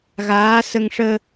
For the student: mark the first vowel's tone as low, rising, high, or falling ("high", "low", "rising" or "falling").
rising